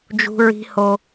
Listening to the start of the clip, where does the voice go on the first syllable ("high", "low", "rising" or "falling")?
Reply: high